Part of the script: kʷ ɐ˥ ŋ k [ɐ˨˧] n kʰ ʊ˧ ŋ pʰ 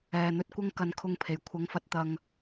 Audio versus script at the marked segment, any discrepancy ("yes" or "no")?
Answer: yes